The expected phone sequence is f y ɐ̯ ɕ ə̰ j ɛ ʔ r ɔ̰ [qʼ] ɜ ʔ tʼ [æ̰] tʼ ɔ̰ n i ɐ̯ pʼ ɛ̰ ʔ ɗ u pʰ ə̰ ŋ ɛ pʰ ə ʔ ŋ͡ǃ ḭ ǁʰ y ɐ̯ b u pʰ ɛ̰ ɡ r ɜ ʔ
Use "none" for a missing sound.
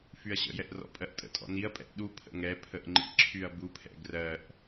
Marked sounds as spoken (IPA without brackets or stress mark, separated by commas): pʼ, ə̰